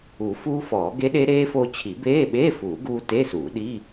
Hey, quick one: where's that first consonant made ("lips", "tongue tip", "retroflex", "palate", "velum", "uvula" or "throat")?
lips